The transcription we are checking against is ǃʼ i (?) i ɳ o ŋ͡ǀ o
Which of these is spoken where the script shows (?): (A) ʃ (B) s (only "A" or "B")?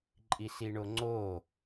B